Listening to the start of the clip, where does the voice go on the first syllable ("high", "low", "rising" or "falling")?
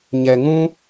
low